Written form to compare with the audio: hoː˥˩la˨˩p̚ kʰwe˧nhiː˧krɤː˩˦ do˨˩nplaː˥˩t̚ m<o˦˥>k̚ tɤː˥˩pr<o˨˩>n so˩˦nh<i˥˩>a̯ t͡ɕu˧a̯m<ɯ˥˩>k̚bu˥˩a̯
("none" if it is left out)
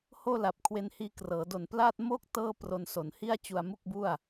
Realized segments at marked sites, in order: o˥˩, o˧, i˥˩, u˥˩

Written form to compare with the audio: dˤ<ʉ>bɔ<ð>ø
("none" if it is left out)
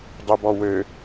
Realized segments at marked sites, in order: ø, w

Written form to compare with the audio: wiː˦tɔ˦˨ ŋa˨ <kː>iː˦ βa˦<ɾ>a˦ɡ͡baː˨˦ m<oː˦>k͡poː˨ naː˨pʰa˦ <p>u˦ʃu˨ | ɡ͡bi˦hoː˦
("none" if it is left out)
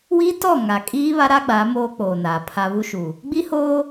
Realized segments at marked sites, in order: kʼ, ɾ, oː˦, β

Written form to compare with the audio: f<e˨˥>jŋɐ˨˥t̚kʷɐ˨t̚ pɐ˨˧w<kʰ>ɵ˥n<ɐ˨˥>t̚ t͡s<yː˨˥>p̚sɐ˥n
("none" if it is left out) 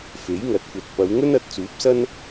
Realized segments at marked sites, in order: e˨˥, ŋ, ɐ˨˥, uː˨˥

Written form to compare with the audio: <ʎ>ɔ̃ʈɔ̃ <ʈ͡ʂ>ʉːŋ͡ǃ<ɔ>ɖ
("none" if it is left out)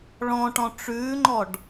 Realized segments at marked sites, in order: ɭ, ʈ͡ʂ, ɔ

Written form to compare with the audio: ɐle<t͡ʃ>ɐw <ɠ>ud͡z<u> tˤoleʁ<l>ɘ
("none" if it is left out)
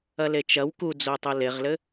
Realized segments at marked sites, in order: t͡ʃ, k, o, l

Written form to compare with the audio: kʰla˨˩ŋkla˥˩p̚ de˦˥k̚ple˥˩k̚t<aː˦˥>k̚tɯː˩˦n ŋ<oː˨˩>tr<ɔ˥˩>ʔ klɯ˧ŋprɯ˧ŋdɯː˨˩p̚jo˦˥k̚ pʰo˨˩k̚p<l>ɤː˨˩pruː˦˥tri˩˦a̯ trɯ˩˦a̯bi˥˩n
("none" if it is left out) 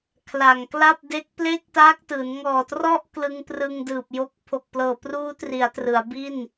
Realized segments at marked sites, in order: aː˦˥, ɔː˨˩, ɔ˥˩, l

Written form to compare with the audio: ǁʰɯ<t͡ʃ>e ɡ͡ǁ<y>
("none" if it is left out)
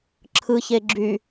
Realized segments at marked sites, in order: ç, y

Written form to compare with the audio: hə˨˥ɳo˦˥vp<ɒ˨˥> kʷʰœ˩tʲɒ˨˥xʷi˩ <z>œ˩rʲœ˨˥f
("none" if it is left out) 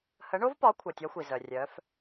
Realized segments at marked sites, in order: ɒ˨˥, z

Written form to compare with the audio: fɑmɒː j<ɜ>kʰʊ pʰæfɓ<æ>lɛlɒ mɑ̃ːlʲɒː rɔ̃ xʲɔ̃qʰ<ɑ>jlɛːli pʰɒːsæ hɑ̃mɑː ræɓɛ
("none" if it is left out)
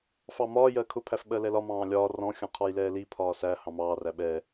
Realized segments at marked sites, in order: ɜ, ɜ, ɒ

